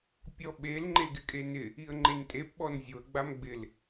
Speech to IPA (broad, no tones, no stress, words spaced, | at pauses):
pʲɔɓel ŋ͡ǃeɡɪkʼenɪ | iə̯ŋ͡ǃentʼep ɓɔnzʲoə̯ ɡ͡bamɡ͡bɪl